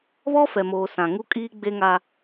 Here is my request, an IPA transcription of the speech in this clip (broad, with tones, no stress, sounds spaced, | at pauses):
β ɔ˦ f ɛ˨ m oː˨ s ã˨ ŋ u˦ kʼ iː˦ ɡ͡b e˦ ŋ a˦